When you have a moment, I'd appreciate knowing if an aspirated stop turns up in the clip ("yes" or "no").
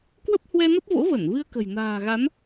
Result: no